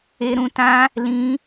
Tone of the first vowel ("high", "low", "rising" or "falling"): high